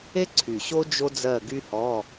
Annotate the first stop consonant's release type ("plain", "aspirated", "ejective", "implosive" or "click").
click